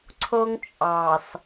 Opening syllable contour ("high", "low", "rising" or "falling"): high